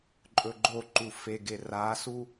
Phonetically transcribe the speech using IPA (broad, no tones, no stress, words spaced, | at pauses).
ǃʼɵɡ͡ǃoǃu feɡe rasu